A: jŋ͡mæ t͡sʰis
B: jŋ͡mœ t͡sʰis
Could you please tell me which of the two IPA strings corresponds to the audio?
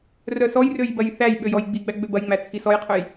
A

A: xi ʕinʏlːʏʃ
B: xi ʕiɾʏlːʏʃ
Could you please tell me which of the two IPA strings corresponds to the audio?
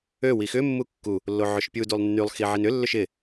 A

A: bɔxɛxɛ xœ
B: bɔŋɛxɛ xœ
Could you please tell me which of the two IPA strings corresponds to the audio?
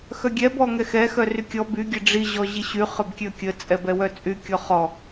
B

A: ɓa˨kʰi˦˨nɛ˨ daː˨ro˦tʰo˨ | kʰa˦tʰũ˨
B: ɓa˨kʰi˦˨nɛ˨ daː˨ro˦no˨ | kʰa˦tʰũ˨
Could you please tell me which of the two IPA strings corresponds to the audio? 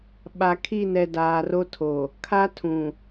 A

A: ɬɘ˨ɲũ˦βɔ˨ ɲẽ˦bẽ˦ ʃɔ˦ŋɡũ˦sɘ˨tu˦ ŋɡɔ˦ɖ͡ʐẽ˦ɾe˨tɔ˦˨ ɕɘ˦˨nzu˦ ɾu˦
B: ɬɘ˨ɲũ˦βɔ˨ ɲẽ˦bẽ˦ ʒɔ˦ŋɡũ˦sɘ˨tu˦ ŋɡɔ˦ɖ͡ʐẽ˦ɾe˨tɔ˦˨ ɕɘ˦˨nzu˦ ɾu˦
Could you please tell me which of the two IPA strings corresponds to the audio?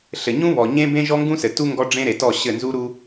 B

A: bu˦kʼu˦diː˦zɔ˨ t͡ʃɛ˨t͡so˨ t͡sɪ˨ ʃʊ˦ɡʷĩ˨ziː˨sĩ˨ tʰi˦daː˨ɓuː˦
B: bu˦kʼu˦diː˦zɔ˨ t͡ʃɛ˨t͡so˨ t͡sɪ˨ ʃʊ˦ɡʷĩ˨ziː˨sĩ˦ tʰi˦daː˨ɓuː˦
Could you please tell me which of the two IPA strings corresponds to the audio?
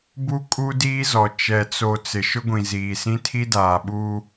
B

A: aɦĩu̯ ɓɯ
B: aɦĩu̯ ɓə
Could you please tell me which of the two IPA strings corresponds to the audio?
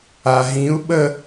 B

